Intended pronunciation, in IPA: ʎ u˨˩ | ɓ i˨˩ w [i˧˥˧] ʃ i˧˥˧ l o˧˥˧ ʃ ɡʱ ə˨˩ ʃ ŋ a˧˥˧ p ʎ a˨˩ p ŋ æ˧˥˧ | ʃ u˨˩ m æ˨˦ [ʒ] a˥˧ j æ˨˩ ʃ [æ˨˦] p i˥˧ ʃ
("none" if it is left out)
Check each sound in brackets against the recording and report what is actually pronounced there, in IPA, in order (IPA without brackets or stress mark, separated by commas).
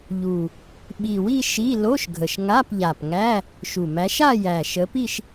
i˥˧, ʃ, ə˨˦